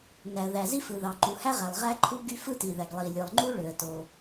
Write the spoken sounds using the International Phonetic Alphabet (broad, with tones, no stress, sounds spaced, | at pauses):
n æ˩ ə̯ ð æ˩ z i˥ f ɯ˩ ð ɑ˩ ǃ u˩ h æ˥ ʁ æ˩ lˠ ʁ æ˥ ǃʰ u˥ ɡ y˥ f ɯ˥ t i˩ ð æ˩ ɡ lˠ i˩ lʲ ɯ˩ lˠ ŋ͡ǃ u˥ ɭ ø˩ ə̯ t o˩